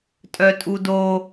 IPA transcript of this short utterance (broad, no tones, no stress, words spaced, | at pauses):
tʼœtʼudo